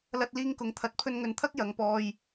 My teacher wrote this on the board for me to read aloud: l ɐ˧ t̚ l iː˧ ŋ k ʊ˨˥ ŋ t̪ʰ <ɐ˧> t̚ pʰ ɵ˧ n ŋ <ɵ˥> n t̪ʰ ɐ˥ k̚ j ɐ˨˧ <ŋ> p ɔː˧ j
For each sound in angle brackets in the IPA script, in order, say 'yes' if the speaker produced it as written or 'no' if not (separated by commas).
no, no, yes